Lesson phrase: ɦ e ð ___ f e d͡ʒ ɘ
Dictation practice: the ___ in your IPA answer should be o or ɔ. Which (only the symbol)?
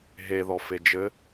ɔ